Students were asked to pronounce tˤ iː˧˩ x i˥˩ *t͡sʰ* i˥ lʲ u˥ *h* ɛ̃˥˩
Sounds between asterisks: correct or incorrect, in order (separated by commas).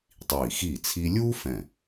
correct, incorrect